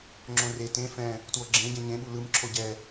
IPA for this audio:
ŋ͡ǁ õ r e t ẽ f ɛ̃ | t w o ɡ͡ǁ ẽ ɟ ɛ̃ ɲ ẽ ɓ u l ɯ m ǁʰ o ɟ ɛ

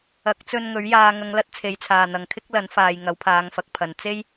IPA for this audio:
ɐ˨˥ k̚ t͡s ɵ˧ n ŋ ɵ˨˥ ɥ j aː˨ ŋ ɐ˨˧ ŋ l ɐ˧ t̚ t͡sʰ e˨˥ j t͡sʰ aː˨ n̪ ɐ˨ ŋ kʰ ɪ˥ k̚ l ɐ˨˥ n f aː˨ j ŋ ɐ˨˥ w pʰ aː˨˧ ŋ f ɐ˨˥ k̚ pʰ ɐ˨˧ n t͡s e˥ j

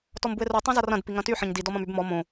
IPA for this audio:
t ɔ m b u e̯ r u tˤ õ z ɐ r ɐ̃ d p i ŋ ɐ̃ t y ħ ɐ̃ ɲ d i d ɔ m ɐ̃ m y b m ɔ m õ

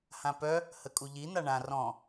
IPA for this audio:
h ã p œ | h ə kʼ u ʎ i n̪ a ɳ ã r ɔ̃

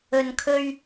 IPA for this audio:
ɵ˨ n kʰ ɵ˧ ɥ

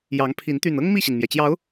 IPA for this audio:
j ɑ˨˦ ŋ pʰ i˨˦ n t̪ y˨˩ n ɤ˦ ŋ m i˥˨ ɕ i˩ n m j ɛ˩ t͡ɕ j ɑ˨˦ ʊ̯

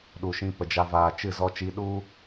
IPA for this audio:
ɗ u˨ ʃ ĩ˧ p ə˨ d͡ʒ a˧ v aː˨ t͡ʃ ɨ˦˨ z ɔ˧ t͡ʃ i˧ ɗ u˦

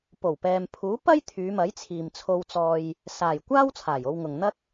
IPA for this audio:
p o˨˩ w p ɛː˨ m pʰ uː˨˥ p ɐ˥ j t̪ʰ yː˨˧ m ɐ˨˥ j t͡sʰ iː˨ m t͡sʰ o˧ w t͡s ɔː˧ j | s aː˨˩ j kʷ aː˥ w t͡sʰ aː˨˩ j o˧ w ŋ ʊ˨ ŋ n̪ ɐ˥ k̚

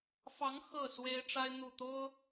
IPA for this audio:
f ɑ˧˥ ŋ x ɤ˥˩ s w e˥ ɪ̯ ʈ͡ʂ a˥ ɪ̯ n̪ u˥˩ t̪ o˥ ʊ̯

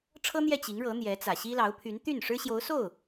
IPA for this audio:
ʈ͡ʂʰ ɤ˥ n̪ j ɛ˥˩ t͡ɕ i˧˥ ŋ ɻ ɤ˧˥ n̪ j ɛ˧˥ t͡s ä˨˩ ɕ i˥ l ɑ˧˥ ʊ̯ pʰ y˧˥ n t̪ y˥˩ n ʂ ɻ̩˥ ɕ j o˧˥ ʊ̯ s o˥˩ ʊ̯

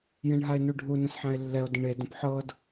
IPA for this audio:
j ẽ ɳ ɦ a e̯ n u ɖʱ u n ə̃ s ħ ã e̯ lː ɛ o̯ d ə̃ ɳ e d ə̃ p ħ ɤ d

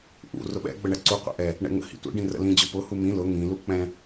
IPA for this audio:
ʔ ṵ r ʊ ɓ ɛ̰ ɡ͡b ə ɳ ɛ ǀ u qʷ ɛ̰ ʔ ɛ | ɳ ɛ̰ ŋ ə̰ h ḭ tʷ ɛ̰ ɖ ĩ r ə̰ l ĩ d͡ʑ ʊ p ʊ h u m ĩ l ʊ ŋ ĩ l u k͡p ɛ̃

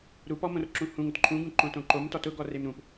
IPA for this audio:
ɾ u p ɔ m õ r ǁ ũ h ũ ŋ ʊ t ǃʰ ũ ɡ ũ ǃ õ t õ ǃ o m t ɔ t ʊ ɡ ɔ r e m ɾ ũ p

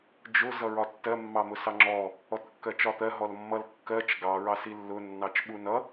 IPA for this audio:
d͡ʒ ʊ z ʌ ɹ ɒ tː ɜ mː ɑ m ʊ s ɑ ŋ͡ǁ ɔ | ɔ t kː ɜ t͡ʃ ɒ t̪ ɜ ɦ ɔ l mː ʌ l kː ɜ t͡ʃ ɡ ɑ ɹ ɑ s i lː ʊ nː ɑ t͡ʃ ɓ u n ʌ

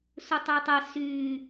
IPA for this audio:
s u tˤ ø tˤ ə s y

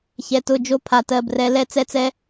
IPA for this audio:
ç ɛ˨ t ʊ˦˨ d͡ʒ o˦ pʰ a˨ t ɜ˨ b r ɛ˨˦ l ɛ˦ t͡s ɛ˦ t͡s ɛ˦

